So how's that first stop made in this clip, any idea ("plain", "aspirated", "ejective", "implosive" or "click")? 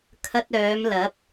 aspirated